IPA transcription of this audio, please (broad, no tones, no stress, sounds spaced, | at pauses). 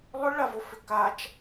lˠ ʏ ɭ a v o f ʏ k a t͡ʃ